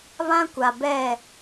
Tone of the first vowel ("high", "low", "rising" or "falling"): high